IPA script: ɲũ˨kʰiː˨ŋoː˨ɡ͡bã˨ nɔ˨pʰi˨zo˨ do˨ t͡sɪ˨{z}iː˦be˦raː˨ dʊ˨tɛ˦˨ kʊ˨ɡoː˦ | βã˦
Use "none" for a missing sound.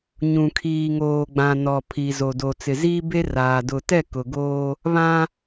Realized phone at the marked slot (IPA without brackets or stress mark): z